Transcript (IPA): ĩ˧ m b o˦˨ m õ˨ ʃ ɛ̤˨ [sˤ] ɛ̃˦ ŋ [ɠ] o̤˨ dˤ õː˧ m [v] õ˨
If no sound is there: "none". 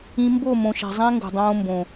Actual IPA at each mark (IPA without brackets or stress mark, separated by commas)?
zˤ, ɡ, b